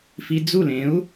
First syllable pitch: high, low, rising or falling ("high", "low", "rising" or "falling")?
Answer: low